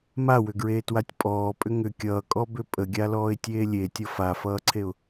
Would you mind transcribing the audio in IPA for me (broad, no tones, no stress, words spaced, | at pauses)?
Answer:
mawʏɡɹeːtwatʲ pʼɔːpʼʏ ŋʏ kʲʌːkʼɔbʏ pʼəɡʲalɔːɪ̯tʲeː lʲetʲʌ fafʌːǀʰeʊ̯